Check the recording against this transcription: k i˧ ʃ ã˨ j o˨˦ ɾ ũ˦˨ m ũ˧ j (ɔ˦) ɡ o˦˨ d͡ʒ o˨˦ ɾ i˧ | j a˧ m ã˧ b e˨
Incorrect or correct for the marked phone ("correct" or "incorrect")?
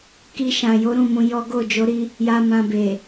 correct